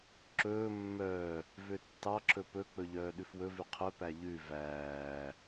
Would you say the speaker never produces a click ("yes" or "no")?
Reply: no